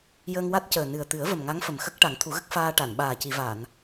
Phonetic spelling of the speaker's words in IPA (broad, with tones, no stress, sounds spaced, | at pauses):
j əː˧ ŋ w a˦˥ t̚ c əː˨˩ n ɨ˨˩ ə̯ t̪ ɨ˨˩˦ ə̯ v ə˨˩ m ŋ a˧˥ ŋ f ə˨˩ m x ə˦˥ k̚ ʈ a˨˩˦ ŋ t̪ʰ u˨˩˦ ɣ ə˦˥ k̚ f aː˧ ʈ a˨˩˨ n ɓ aː˨˩ c i˨˩˨ v a˨˩˨ n